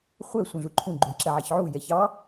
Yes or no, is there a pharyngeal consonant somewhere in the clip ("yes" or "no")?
yes